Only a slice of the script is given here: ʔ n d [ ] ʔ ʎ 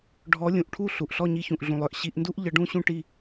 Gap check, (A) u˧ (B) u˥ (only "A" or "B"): B